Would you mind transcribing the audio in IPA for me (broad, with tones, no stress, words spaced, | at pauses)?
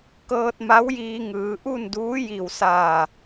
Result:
kɤː˧t̚ma˧˥wjiː˧ŋɯː˩˧ ʔu˥˨nduː˧˥ji˧˩wsaː˧˩